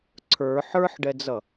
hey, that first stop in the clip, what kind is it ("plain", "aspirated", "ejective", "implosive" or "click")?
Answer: click